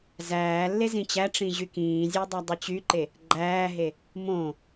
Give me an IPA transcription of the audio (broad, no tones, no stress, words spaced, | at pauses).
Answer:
zæːlːe zĩt͡ɕæʈ͡ʂĩ ʑykĩːzʲe dˤɑdˤɯt͡ɕyǃe | ɡ͡ǃæːɦe | mõ